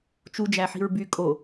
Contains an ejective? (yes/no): yes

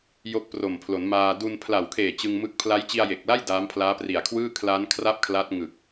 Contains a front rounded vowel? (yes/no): no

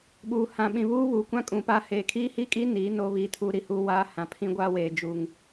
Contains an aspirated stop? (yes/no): yes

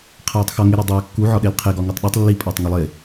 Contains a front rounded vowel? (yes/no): no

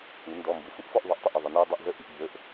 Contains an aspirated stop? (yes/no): no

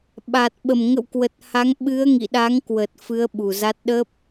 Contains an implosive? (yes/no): yes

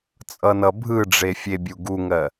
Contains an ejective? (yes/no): yes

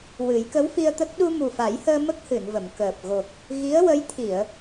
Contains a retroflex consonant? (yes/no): no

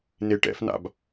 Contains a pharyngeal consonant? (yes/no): no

